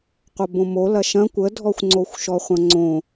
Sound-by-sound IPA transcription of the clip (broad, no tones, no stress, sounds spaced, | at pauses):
qʷ ɐ b õ m o l ɐ ʃ ɐ̃ kʷ ə dʱ ɔ xʷ ŋ͡ǀ o xʷ ʃ ɔ χʷ ɐ̃ ŋ͡ǀ õ